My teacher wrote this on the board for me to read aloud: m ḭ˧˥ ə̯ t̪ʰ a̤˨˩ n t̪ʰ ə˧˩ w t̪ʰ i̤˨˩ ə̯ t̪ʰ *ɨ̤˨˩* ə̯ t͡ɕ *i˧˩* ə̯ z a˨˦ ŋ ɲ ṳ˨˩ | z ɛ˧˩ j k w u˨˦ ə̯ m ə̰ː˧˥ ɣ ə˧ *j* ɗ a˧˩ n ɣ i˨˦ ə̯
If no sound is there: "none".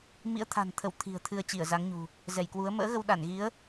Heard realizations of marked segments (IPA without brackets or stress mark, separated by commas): ɨ˧, i˧˩, w